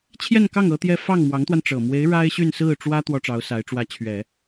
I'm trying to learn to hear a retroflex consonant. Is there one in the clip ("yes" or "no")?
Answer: yes